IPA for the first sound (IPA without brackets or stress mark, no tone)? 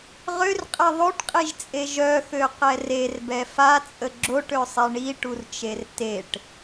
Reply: ʁ